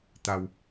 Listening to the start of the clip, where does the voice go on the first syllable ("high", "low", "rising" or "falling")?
low